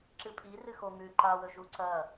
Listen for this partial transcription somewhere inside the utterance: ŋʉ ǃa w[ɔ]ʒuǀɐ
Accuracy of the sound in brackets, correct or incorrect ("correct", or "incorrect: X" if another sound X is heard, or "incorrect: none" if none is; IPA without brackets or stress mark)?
incorrect: ɵ